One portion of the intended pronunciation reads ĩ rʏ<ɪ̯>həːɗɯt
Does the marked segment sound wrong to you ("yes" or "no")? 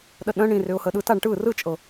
yes